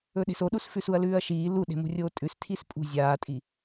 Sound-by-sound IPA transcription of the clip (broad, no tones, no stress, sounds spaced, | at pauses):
ɵ ɗ e̤ s o ɗ u s f ʉ s u ɐ̯ l ʉː ɐ̯ ʃ iː l u ɗ e̤ m ṳ rʲ oː tʼ ʉ s tʰ i s pʼ ṳ zʲ aː tʼ i